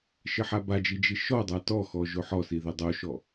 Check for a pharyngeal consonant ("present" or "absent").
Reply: present